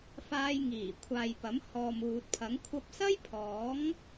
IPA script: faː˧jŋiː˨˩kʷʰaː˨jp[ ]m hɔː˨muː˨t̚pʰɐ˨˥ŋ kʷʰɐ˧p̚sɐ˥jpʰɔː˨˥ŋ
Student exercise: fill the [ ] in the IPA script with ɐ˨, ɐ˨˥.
ɐ˨˥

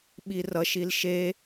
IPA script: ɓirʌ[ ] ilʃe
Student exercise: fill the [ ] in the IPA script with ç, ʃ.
ʃ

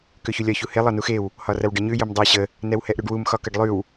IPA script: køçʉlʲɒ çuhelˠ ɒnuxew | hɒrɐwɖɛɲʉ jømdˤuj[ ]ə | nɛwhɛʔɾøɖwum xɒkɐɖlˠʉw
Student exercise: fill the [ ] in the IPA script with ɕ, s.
ɕ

